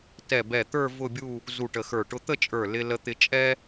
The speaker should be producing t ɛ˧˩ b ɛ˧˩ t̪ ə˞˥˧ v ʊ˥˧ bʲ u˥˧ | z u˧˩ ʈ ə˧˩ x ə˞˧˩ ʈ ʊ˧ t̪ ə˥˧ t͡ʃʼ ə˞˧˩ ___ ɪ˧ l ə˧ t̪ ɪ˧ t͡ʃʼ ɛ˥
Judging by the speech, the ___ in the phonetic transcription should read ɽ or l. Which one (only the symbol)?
l